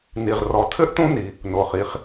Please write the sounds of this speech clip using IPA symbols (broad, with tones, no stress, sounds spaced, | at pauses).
n i˩ ʁ r ɔ˩ tʰ ɘ˥ ʔ t ũ˥ n i˩ | n o˩ χ i˩ χ